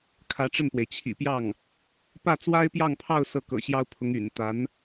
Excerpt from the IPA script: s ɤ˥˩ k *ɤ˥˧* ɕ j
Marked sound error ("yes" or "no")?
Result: yes